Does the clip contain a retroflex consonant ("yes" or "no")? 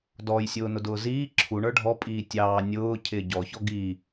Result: yes